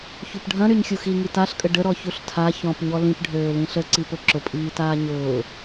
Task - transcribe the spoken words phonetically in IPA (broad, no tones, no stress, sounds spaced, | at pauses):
ç u p ɖʱ ɐ̃ ɾ y ɲ xʲ u x i ŋ i t a ɬ kʼ ə ɖ ə ɾ ɔ ç u ɬ tʰ a ç ɔ̃ p ɲ ɔ l ĩ p ɖʱ øː l ĩ ɬ ə ǀ i p ʊ ǁ ʊ pʼ iː t aː ɲ ʊː